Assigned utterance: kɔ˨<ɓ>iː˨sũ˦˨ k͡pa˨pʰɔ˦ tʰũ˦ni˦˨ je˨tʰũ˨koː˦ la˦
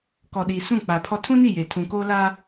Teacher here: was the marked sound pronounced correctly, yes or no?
no